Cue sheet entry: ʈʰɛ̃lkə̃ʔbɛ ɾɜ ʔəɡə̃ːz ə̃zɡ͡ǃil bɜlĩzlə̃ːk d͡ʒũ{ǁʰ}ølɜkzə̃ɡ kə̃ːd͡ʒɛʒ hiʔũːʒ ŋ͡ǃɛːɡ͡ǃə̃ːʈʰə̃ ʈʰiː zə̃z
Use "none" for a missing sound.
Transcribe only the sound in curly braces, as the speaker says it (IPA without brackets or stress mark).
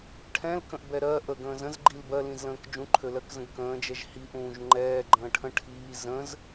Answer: ǃʰ